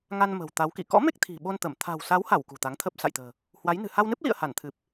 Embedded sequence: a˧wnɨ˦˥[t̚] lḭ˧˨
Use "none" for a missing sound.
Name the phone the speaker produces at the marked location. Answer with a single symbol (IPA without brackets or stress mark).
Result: p̚